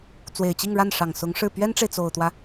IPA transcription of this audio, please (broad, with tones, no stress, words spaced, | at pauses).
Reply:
t͡swe˨˩ɪ̯t͡ɕi˥˧ŋɻa˥˩nʂɑ˨˩ŋ sʊ˧˥ŋʂɻ̩˥˩ pɥɛ˥nʈ͡ʂe˨ɪ̯ t͡so˨˩ʊ̯t̪wä˦